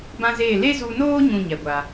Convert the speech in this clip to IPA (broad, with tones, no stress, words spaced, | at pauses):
bã˦zeː˦˨ le˦zu˧noː˦ ɲũ˦˨ɲɛ˨ɡʷa˨